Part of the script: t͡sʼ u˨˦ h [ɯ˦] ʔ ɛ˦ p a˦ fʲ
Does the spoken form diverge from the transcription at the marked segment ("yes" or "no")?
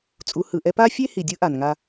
yes